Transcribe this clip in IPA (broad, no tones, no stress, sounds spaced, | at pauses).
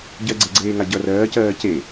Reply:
ɟ ɜ ɡ͡ǀ e ɡ͡ǀ eː ŋ a ɟ ʌ r ɜː c ɜː c e